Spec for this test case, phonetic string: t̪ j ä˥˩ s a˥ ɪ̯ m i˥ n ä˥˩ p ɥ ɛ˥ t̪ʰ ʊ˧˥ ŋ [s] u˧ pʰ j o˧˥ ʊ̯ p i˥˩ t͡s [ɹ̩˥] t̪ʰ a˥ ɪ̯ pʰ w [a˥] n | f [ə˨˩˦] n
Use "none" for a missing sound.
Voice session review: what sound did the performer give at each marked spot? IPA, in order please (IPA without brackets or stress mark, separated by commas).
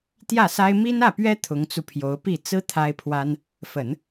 t͡s, ɹ̩˥, a˥, ə˨˩˦